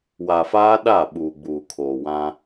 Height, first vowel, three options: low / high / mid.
low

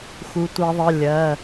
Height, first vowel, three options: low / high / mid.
high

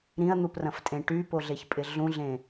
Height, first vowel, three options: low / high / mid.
high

